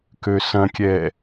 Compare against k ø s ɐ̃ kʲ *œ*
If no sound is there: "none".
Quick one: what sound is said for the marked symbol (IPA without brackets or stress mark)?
ɛ